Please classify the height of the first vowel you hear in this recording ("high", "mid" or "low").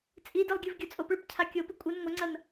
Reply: high